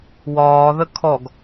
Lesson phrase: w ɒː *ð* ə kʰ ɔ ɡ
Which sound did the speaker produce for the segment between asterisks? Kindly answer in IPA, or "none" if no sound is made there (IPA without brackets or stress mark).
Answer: ð